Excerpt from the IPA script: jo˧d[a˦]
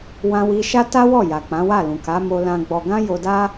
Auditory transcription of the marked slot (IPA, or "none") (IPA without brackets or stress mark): a˦